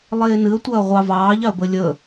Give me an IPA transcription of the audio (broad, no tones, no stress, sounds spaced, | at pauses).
lˠ eː n ɨ ə̯ tʷ ɐː ʁʷ ɑ v ɑː ʎ ɑ ə̯ b ə lʲ ə